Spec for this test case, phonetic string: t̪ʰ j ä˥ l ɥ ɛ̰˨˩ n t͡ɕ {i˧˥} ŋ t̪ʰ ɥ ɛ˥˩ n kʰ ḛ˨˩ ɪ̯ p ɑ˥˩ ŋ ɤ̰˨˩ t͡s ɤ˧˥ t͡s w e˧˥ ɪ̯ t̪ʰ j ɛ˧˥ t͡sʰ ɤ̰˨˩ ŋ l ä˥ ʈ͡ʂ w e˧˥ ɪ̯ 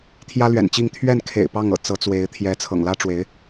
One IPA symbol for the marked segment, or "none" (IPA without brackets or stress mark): i˥˧